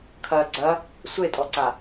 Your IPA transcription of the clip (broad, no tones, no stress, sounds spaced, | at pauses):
kʰ ɐ ɡ͡ǀ ɐ | sʷ e tʼ ɔ ǀ a